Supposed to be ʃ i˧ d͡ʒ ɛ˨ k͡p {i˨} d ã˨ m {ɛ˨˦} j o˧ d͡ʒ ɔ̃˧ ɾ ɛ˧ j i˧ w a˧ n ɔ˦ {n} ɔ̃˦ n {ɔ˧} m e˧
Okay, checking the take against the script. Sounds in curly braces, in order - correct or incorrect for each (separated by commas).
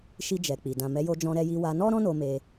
correct, correct, incorrect, incorrect